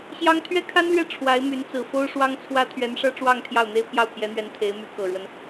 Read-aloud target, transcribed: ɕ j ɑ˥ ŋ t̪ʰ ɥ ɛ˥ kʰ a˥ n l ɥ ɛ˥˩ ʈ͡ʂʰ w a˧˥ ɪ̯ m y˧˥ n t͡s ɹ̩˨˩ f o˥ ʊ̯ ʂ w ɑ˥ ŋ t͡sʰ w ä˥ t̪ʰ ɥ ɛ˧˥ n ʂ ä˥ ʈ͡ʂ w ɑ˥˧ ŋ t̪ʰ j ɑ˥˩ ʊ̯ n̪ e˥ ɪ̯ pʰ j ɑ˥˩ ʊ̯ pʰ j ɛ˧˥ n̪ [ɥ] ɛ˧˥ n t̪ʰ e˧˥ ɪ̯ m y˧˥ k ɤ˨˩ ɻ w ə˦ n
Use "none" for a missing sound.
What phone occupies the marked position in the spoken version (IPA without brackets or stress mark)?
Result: ɥ